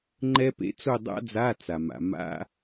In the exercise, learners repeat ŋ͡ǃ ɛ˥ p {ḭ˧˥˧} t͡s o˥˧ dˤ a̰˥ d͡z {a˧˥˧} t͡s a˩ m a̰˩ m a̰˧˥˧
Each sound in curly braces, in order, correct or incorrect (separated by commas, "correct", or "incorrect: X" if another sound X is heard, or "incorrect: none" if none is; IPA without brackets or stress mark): incorrect: ḛ˧˥˧, correct